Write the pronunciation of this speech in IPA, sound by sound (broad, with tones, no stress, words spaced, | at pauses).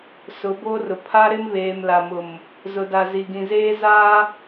sʊ˨˦boː˦rʊ˨ pʰa˦ɾɪ˦mβeː˨m la˨mʊ˨m | zʊ˨da˨zi˨ ɡĩ˨ zeː˦ zaː˦